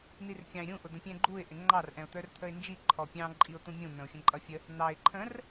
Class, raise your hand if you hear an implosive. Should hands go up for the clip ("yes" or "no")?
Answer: no